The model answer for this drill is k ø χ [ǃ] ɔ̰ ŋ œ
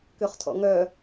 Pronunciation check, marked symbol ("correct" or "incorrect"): incorrect